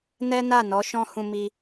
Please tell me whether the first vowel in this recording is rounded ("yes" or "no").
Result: no